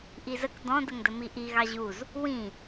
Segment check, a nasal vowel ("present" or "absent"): present